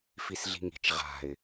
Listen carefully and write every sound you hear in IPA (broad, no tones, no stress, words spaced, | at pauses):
fisɮi̤ŋi̤t͡ʃ ʁa̤ɪ̯